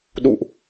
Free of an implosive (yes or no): no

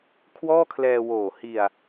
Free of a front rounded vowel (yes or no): yes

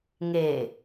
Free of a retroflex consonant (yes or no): yes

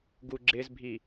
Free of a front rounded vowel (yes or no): yes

